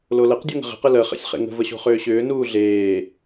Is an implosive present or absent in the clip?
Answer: absent